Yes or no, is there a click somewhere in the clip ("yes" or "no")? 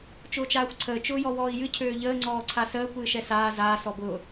yes